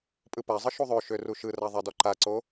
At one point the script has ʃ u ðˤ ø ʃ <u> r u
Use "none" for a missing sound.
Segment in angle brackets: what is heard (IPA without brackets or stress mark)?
ø